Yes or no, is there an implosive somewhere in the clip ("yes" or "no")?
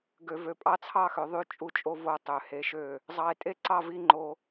no